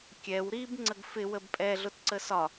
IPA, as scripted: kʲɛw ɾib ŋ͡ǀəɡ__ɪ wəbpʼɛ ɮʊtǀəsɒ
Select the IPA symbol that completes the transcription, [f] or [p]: f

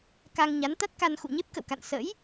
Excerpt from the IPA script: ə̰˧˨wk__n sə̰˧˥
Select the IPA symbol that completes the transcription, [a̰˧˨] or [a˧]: a̰˧˨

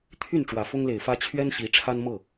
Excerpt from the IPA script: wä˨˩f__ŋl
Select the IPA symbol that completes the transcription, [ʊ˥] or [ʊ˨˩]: ʊ˥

